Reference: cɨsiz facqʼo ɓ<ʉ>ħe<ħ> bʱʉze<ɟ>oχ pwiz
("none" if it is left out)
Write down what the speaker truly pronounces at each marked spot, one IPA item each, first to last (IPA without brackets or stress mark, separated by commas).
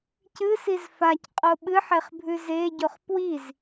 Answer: ɨ, χ, ɟ